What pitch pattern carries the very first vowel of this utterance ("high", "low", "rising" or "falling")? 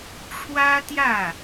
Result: high